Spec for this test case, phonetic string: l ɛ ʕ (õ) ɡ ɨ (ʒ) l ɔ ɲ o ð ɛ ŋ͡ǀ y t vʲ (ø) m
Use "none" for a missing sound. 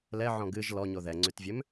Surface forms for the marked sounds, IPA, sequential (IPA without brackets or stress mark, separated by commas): ɔ̃, ʒ, ø